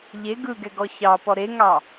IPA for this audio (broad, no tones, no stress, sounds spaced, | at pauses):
ʎ e ɡ ɯ ɡ ɛ ɡ ɔ ç ɑ p ɔ ɾ e ŋ ɑ